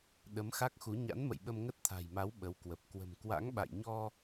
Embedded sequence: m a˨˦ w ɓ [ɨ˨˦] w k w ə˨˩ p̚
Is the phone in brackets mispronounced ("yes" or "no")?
yes